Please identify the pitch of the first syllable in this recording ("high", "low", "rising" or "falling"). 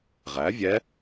rising